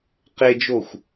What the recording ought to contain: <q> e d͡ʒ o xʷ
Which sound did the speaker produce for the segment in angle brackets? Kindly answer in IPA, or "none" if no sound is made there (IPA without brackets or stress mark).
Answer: q